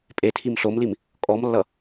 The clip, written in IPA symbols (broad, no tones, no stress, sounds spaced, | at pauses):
pʼ e tʰ i m ɬ o m l i m | kʼ ɔ m lː ʌ